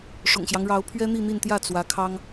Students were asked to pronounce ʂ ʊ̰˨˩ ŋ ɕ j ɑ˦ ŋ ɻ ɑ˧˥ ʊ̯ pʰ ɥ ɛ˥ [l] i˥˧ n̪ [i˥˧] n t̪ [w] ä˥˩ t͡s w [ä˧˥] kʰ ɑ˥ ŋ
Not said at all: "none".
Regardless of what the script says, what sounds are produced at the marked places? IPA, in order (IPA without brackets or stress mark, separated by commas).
n̪, i˥˧, j, ä˧˥